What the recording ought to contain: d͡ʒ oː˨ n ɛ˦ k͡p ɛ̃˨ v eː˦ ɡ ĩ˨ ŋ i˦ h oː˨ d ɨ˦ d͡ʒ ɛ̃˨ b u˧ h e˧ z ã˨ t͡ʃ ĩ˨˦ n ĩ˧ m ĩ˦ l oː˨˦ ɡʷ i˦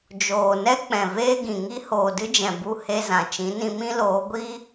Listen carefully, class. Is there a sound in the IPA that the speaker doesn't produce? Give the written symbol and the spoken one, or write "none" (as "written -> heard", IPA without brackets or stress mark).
none